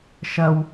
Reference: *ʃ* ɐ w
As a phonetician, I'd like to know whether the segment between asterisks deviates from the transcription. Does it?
no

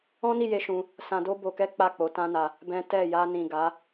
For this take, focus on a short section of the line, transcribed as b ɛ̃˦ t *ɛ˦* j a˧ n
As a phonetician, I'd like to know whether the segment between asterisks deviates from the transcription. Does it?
yes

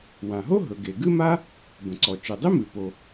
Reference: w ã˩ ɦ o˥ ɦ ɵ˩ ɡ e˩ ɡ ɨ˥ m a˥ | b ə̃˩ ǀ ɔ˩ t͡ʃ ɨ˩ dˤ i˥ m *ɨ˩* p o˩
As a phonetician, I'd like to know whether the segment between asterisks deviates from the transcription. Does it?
no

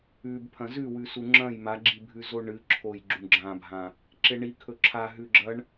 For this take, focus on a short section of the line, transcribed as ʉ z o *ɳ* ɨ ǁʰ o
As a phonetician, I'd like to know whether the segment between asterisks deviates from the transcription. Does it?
no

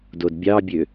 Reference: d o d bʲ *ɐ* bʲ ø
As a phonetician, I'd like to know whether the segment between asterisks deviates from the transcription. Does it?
yes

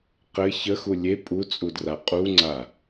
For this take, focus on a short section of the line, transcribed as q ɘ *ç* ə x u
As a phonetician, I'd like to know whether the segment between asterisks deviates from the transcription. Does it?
no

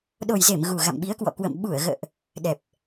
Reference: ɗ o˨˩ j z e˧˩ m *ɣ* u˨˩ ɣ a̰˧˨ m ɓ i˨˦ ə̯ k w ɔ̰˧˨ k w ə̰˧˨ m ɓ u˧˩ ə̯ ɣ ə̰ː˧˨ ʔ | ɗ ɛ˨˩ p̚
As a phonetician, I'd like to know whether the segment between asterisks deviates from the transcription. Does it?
no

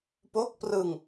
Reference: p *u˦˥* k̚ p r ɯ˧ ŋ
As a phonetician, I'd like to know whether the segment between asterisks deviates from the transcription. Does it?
yes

